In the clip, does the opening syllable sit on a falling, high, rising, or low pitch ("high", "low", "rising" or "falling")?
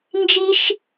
high